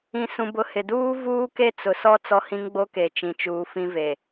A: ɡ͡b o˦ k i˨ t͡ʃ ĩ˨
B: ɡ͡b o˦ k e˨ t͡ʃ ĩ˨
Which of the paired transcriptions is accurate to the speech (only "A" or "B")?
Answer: B